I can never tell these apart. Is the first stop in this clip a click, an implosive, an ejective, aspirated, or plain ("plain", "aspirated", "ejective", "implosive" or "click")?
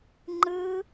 click